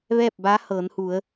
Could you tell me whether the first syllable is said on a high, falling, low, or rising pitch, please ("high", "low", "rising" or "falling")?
falling